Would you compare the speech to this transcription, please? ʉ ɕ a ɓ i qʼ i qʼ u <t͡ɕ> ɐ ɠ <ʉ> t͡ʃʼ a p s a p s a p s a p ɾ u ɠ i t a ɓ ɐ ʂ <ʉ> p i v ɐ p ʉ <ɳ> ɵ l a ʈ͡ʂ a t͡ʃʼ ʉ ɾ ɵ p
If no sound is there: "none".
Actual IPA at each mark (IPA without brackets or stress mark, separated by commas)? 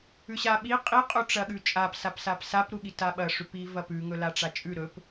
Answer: ʈ͡ʂ, ʉ, ʉ, ŋ